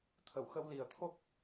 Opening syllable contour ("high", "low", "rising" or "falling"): low